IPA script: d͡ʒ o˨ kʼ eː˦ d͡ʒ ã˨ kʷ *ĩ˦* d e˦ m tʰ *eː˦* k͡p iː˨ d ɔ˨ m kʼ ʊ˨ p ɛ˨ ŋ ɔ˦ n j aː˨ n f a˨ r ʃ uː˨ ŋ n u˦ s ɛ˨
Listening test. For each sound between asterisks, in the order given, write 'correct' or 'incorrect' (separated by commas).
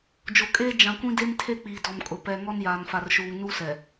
correct, incorrect